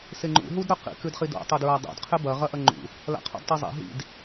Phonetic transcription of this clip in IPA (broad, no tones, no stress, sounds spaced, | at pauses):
s e ŋ͡ǃ ṵ ɦ u d ɾ ɵ q ḭ k ʉ d χ i d o̰ tˤ e d ɹ a dˤ o̰ d qʰ e b ɐ ʁ ɐ ʔ ɐ ŋ͡ǃ ṵ | l a̰ qʰ o̰ d tˤ i zˤ ḛ ɦ ḭ d